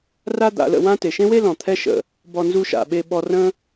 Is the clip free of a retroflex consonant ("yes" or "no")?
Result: yes